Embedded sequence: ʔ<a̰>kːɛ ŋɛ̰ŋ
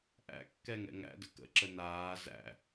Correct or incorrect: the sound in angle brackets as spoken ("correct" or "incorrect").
incorrect